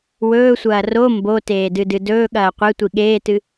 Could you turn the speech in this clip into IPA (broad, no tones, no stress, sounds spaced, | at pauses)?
w ɵː sʷ ɐː r o m b o t eː d ɨ d ɨ d ɵː ɠ ɐː qʷ e tʷ i ɠ eː t ɨ